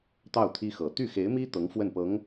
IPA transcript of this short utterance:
t̪ ɑ˥˩ ʊ̯ t̪ʰ i˥ x ɤ˨˩ t̪ y˥˩ x e˧˥ ɪ̯ m i˥ t̪ ɤ˧˥ ŋ f w ə˥˩ n p ɤ˧˥ ŋ

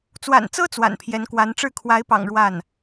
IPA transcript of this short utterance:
t͡s w a̰˨˩ n t͡s ɤ˥ t͡s w a̰˨˩ n pʰ j ɛ˧˥ n k w a˧˥ n ʈ͡ʂ ɻ̩˥˩ kʰ w a˧˥ ɪ̯ p ɑ̰˨˩ ŋ ɻ w a˥˩ n

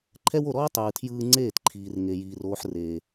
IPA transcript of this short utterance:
ǃʰ ɛ˦ w o˧ ɾ ɔː˦ tˤ ɯː˨ tʰ j ɯː˧ ŋ͡ǀ eː˦˨ t ǃʰ iː˨ r ŋ e˧ j iː˧ r oː˦ ħ r eː˧

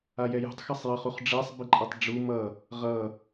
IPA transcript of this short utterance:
a j ɛ j ṳ tˤ x ʌ sˤ j ʌ χ u χ ɖ͡ʐ ɛ sˤ b i ǃʼ ʌ tˤ ɖ͡ʐ u m ʌ | ʁ ʌ

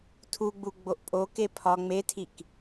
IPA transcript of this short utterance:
tʰ u ɡ͡b u ɡ͡b o ʔ pʼ o k e pʰ ɒ ŋ͡m e tʰ i k

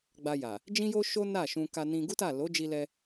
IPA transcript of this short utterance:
ɡ͡b a˧ j a˨ | d͡ʒ ĩ˦ j o˦ ʃ o˦ n a˦˨ ʃ ũ˧ k a˧ n ĩ˧ ɡ u˦ t a˦˨ l o˨˦ d͡ʒ i˧ l ɛ˧

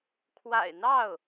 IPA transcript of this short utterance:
kʰ w a̰˨˩ ɪ̯ n̪ ɑ˥˩ ʊ̯

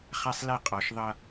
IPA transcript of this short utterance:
χ a˦ sˤ l ɛ˦ qʼ ɒ˨ ʃ ðˤ ʌ˦

